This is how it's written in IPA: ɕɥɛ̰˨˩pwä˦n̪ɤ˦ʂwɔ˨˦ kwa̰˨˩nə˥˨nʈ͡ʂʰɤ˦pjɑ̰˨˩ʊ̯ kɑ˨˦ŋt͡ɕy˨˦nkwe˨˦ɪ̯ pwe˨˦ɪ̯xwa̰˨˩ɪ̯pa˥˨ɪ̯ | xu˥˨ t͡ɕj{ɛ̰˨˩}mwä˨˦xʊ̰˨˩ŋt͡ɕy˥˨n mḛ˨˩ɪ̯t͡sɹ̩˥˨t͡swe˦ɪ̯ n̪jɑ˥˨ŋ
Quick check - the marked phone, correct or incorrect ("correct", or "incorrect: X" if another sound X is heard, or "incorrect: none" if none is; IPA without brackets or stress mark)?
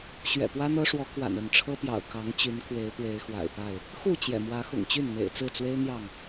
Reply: correct